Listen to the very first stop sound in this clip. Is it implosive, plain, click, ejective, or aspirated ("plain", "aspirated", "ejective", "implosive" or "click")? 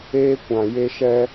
plain